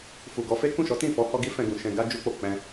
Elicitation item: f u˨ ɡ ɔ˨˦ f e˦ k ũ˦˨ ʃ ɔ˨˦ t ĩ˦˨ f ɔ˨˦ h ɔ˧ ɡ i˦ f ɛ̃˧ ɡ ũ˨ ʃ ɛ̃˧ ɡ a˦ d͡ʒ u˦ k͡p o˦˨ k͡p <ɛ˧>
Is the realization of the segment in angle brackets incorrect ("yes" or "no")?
yes